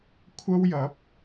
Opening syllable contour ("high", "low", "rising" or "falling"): high